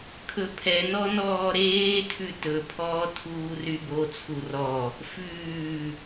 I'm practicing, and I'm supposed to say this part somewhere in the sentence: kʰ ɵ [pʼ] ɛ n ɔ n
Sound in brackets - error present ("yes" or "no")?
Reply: yes